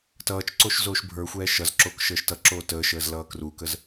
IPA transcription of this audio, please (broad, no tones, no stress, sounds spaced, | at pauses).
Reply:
t ʌː t͡ʃ ǀ o ʃ z oː ʃ bʱ ə˞ xʷ ɛː ʃ ʌ z ǁ oː k ʃ əː ʃ t ʌ ǁ oː t əː ʃ əː z l ʌː k r u k ə z